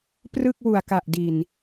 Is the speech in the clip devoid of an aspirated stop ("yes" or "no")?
yes